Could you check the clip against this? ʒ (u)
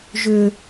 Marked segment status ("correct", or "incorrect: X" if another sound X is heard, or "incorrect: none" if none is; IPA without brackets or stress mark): incorrect: ʏ